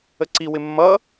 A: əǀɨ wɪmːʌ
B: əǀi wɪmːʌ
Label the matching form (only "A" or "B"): B